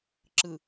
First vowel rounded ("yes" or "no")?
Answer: no